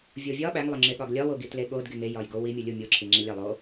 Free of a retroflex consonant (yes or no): yes